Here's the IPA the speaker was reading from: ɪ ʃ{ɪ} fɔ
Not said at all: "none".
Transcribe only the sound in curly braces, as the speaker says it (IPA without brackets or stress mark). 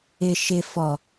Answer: ɪ